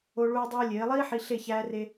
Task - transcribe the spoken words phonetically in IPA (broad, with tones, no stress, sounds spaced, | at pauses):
o˧ ɭ uː˧ dˤ uː˧ lʲ eː˨˦ lˠ iː˦ ħ i˧ ɬ e˦˨ ç æː˧ r e˧